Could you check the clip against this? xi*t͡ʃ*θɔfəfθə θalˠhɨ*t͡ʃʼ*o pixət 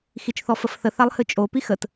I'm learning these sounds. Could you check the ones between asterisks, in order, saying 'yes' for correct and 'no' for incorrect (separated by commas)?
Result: yes, yes